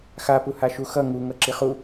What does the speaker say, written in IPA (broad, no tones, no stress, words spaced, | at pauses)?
xapu haʃuxʌ ŋuŋʌ ǁiχu